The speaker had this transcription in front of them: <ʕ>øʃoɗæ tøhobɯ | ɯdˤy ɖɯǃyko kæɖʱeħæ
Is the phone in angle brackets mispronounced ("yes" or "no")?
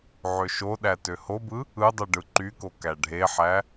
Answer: no